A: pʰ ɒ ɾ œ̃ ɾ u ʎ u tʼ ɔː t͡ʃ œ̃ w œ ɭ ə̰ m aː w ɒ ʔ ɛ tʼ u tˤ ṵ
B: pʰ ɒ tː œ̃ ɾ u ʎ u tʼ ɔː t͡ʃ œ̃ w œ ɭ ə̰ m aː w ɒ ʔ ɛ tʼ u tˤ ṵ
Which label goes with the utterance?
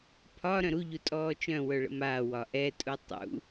A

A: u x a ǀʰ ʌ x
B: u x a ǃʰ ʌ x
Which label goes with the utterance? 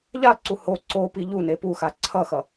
A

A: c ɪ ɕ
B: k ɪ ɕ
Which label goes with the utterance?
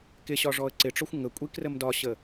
B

